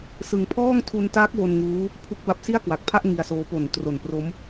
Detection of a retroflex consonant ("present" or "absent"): absent